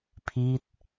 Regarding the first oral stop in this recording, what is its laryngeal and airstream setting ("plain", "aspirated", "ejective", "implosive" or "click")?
aspirated